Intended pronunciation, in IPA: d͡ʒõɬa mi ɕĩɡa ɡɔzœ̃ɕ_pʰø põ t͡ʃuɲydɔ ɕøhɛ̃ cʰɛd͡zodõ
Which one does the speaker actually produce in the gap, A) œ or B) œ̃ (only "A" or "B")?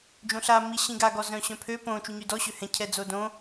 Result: B